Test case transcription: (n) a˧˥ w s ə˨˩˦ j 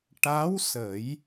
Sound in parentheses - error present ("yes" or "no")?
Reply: yes